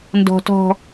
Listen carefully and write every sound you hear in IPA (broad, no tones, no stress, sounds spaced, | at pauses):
n d ɔ̤ t ɔ̤